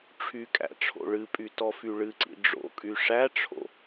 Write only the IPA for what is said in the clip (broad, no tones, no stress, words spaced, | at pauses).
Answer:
ʈ͡ʂʰykʼæ̰ ʈ͡ʂʰo̰ɭɨpʼy tɔfyɭɨǀḭ ɖ͡ʐo̰kʼy ʂæʈ͡ʂʰo̰